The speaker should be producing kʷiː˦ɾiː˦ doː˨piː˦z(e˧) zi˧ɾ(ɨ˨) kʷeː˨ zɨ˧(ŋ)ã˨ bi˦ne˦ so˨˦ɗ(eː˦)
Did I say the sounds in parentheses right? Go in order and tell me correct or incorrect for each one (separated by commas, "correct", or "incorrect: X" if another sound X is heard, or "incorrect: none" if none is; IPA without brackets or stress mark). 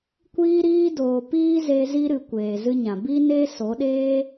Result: correct, correct, incorrect: ɲ, correct